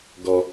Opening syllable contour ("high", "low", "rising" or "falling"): low